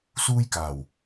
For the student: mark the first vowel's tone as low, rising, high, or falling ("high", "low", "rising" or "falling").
high